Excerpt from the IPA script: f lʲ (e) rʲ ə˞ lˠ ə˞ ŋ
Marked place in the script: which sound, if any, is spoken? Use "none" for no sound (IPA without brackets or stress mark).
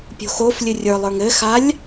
ɨ